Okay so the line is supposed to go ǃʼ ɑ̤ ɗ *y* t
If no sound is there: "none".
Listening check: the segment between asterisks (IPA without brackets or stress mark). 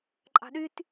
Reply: y